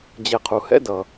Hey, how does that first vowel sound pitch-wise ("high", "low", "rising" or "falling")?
low